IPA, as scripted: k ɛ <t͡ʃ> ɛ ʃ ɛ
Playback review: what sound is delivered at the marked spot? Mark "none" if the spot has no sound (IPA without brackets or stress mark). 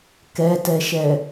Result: t